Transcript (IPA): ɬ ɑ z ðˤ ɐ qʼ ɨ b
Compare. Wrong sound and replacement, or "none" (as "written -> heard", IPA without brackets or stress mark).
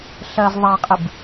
ɑ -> ɐ